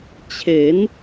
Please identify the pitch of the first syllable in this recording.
rising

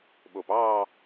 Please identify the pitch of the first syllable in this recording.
low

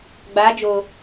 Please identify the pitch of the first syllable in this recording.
rising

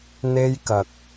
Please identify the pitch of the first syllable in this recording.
high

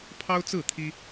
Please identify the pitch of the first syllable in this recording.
high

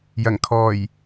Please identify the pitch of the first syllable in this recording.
low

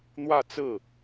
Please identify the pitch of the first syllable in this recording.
falling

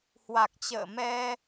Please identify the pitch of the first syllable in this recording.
low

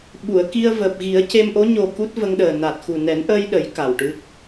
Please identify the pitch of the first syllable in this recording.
low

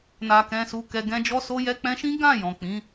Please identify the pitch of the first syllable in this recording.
low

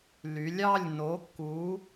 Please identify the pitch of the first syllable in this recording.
rising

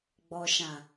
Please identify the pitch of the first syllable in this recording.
low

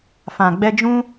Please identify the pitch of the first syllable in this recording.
low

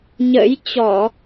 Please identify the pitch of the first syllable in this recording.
rising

